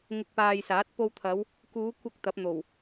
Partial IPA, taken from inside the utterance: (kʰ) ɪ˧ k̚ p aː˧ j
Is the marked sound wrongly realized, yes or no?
yes